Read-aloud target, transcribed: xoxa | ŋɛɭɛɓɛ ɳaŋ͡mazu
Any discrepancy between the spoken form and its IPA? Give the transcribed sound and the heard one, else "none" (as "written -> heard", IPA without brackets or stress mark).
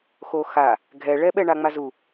ŋ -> ɡʱ